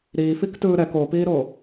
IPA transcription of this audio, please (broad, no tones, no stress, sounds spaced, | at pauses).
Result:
ɾ iː f i k t ɯː ɾ ɛ k o p iː ɾ o